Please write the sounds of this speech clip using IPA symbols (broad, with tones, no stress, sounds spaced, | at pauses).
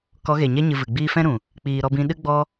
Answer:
k ɔ˨˦ ɣ e˨ ɲ ɛ˦ ɲ ɨ˧ v ɨ˨ ɡ͡b iː˦ f ɛ̃˦ ɾ ũ˨ | k͡p iː˨ ɾ ɔ˧ b ĩ˧ ɗ ɨ˦ ɡ͡b ɔ˦